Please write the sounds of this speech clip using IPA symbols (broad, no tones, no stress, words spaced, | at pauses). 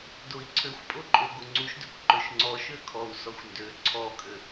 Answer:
doi̯ǀʰøxʷpʼoǃʼo ɡoŋ͡ǀuʃdøkʷ ǃøʃŋ͡ǀɔ ʃøkʰɔu̯ sɔxʷndø ǀʰɔkʼø